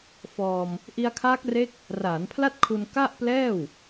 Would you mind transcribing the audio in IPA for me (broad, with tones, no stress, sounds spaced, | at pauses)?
f ɔː˧ m | ʔ i˧ a̯ kʰ aː˦˥ k̚ r e˦˥ k̚ | r aː˩˦ n pʰ l a˥˩ t̚ kʰ u˧ n k a˥˩ ʔ p l ɛː˥˩ w